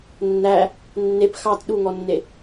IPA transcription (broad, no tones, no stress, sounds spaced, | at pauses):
nː æ | nː e p x ɑ t ɗ u ŋ ɔ nː e